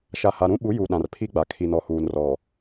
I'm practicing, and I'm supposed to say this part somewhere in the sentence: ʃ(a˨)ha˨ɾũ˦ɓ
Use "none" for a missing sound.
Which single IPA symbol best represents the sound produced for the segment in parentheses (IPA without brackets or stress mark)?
a˨